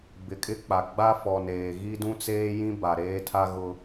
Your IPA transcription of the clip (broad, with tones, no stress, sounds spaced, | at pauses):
b ɪ˨ kʼ ɪ˦ k͡p a˨ ɡ͡b a˦ f ɔ˨ n eː˨ ɣ i˦ d ũ˦ t͡s eː˦ j ĩ˦ b a˨ ɾ eː˦ tʰ a˦ ɣ ʊ˦